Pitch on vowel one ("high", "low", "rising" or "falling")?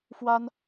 high